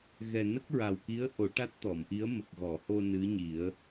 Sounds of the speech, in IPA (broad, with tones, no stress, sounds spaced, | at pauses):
ɣ ɛ˨˩ n ə˦˥ k̚ ɹ a˨˩ w k i˧˥ ə̯ ʔ o˨˩˦ ʈ a˦˥ t̚ t̪ ɔ˨˩˨ m ʔ i˧˥ ə̯ m ə˨˩ k̚ ɣ ɔ˨˩˨ h o˧ n ɨ˧˥ ɲ i˨˩˦ ə̯